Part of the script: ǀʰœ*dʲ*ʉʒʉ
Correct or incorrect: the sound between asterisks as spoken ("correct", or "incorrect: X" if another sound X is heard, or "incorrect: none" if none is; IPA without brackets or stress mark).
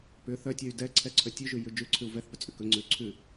incorrect: tʲ